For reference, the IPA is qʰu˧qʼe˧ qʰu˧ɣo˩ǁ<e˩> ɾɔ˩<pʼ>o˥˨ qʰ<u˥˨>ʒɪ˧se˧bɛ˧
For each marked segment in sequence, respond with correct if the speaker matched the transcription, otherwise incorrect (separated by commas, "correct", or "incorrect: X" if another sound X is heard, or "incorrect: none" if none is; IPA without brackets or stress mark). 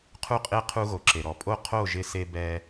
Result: correct, correct, incorrect: o˥˨